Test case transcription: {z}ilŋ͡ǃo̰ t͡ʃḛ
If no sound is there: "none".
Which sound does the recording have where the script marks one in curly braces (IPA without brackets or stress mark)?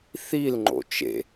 θ